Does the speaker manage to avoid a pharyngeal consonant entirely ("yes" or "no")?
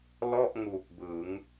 yes